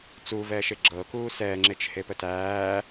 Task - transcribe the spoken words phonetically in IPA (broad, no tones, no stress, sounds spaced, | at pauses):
t͡s uː v ɛː ʃ e ɡ͡ǁ ɤ k uː s ɛː ŋ͡ǁ e t͡ʃ h e p ə t æː